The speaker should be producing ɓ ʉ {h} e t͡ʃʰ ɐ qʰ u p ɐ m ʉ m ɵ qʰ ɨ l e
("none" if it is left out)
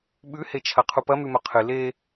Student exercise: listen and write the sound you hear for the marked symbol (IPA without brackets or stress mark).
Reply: h